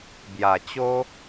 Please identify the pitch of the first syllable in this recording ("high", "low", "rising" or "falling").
low